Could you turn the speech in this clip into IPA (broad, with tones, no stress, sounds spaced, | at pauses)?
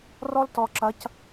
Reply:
r ɔ˦ l t ɔ˨ ǁ ɐ˨˦ c